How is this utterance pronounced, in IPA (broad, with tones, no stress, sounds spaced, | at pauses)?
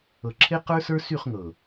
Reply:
ɤ˨ ǁʰ e˦ q ə˞˦ s ə˞˦ s y˦˨ χ ŋ ɤ˨